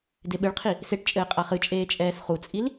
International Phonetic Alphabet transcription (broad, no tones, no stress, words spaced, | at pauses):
deɓɨɭqʰi | seʈt͡ʃʼɘː qʼaχɨt͡ʃʼeː t͡ʃʼɛːsχut͡sʼil